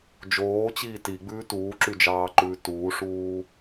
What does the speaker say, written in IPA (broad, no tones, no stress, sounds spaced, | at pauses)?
d͡ʒ oː t͡ɕ iː t i ɡ͡b ʉː t uː ǁ y d͡ʒ ɑː ǃ ʉː t uː ʂ uː